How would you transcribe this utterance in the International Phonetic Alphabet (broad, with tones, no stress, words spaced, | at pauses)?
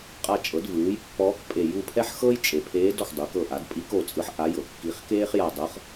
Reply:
qʼa˦˨t͡ʃʼɤ˩˥dvɯː˩˥jpːɔː˧˥k pʼe˦˨ ju˦˨pʰɛ˥ħxɤ˥j t͡ʃʼe˨pʰeː˧˥d ɔ˨xdˤu˩˥kɤ˦˨ ʔa˩˥d pʼi˧˥k o˦˨t͡sʼɯ˧˥ħ ʔa˧˥jɤ˨kːi˧˥χ keː˥χja˦˨dˤɤ˧˥χ